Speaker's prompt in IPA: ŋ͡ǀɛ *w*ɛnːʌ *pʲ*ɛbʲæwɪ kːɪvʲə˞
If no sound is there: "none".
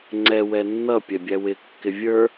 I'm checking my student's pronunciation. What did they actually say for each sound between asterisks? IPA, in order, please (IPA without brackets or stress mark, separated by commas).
w, pʲ